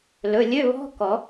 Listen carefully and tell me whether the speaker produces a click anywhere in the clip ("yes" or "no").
no